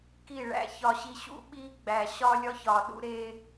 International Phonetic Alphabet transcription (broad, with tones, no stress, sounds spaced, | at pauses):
k i˦˨ ɭ æ̰˦ ç ɒ˨ ɕ i˨ ɕ ṵ˦ ɓ i˦ ɡ͡b æ˨ ɕ ɒ˦ lʲ ɒ˦ ç ɒ˨ ɗ ṵ˦ ɾ e˦